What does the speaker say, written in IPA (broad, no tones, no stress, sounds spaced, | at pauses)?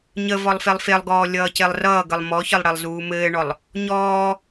ɲ ə v ɔ lˠ f e lˠ f e lˠ ɡ ɔː lʲ ʌː c e lˠ r ʌː ɡ ə lˠ m ɔ ç ə lˠ ɽ e lˠ z uː m ɘː ɳ ɔ lˠ | ɲ ɔː